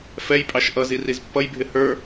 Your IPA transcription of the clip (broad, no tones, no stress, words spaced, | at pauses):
fɛjpʼɑʃ ʔʌzir izpːʌjbʱɪ hə˞